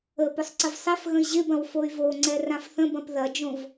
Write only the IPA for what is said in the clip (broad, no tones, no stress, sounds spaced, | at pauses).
ə p ʊ sˤ ǀ ə v sˤ ɛ f ɣ ə̃ i̯ ʑ ɪ b ɐ̃ w f o y̯ v o ŋ͡ǀ ɛ r ã f θ ə̃ b ɐ̃ p ð ɐ d͡ʒ õ v